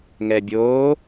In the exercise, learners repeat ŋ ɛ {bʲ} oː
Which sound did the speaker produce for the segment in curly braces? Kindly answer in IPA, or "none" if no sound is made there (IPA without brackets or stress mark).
bʲ